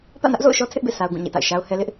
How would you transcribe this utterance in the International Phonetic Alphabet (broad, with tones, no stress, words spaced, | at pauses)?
pä̰˦˨nä˦ʔzo̰˦˨ʊ̯ʃɔ˦ tʰɪ˦ʔbḛ˦˨ sʰa˦ʊ̯ɡũ˦˨ɲḛ˦˨ta̰˦˨ɪ̯ ʃa˦ʊ̯hɛ˦ lɪ˦ʔ